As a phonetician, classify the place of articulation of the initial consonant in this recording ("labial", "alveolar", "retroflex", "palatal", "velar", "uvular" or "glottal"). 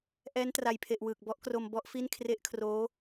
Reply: glottal